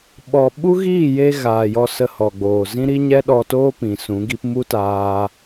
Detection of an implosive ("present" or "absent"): present